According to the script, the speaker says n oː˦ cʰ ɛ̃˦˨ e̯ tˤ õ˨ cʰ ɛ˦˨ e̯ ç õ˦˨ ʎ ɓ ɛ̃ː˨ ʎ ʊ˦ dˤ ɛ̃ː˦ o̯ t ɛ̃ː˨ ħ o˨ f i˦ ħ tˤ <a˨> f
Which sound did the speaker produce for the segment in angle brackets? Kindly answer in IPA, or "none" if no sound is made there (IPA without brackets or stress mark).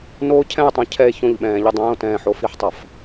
a˨